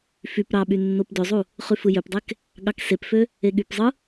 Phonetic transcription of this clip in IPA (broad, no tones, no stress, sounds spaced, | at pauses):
f y p ɾ ɑ ɓ y nː o p d ø zˤ u | χ y f ɯ j ø p dˤ e k | ɠ ɑ k s e p f ø | e ɠ y p zˤ ɯ